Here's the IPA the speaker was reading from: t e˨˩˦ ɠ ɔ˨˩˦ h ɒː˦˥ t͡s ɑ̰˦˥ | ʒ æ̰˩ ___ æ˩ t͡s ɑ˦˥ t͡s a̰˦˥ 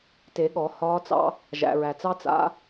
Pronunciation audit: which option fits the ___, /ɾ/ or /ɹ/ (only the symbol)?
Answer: ɹ